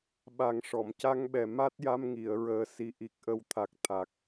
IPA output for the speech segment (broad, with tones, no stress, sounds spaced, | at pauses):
ɓ a˨˩˦ ŋ ʂ ɔ˨˩˨ m c a˧ ŋ ɓ ɛ˨˩ m a˦˥ t̚ j a˧ m ŋ i˨˩˨ ə̯ ɹ əː˨˩˦ s i˨˩ ʔ i˨˩ k̚ ʔ ə˨˩ w t̪ʰ a˨˩ k̚ t̪ʰ a˨˩ k̚